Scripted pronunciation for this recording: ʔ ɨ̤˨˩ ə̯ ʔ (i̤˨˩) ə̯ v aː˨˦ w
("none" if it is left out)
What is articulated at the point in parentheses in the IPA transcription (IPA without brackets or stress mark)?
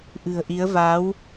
i˨˦